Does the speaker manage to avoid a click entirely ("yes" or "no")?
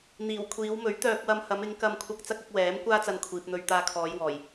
yes